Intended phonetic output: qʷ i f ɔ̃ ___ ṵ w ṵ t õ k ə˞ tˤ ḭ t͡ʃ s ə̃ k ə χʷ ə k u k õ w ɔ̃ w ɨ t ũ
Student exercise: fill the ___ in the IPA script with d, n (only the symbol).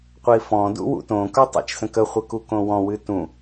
d